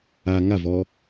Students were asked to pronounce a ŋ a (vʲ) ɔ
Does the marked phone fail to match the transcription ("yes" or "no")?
yes